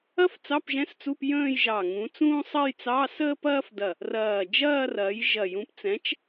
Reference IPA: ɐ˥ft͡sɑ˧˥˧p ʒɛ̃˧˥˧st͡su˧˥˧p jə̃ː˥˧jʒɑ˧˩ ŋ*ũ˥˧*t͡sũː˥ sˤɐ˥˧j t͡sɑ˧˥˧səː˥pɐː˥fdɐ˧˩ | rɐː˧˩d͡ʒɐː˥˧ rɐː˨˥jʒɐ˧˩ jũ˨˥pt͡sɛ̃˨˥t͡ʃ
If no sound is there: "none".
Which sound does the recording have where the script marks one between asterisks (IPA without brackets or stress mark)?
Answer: ũ˨˥